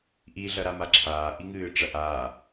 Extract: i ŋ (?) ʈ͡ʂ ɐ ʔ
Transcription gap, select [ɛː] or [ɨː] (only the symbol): ɨː